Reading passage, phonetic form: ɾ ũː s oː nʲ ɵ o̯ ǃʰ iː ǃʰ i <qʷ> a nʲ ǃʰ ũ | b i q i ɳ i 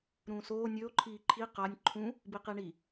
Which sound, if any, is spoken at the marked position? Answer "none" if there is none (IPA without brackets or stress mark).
q